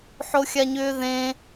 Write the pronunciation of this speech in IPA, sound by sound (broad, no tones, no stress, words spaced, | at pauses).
ħoxʲaɲʏːðẽ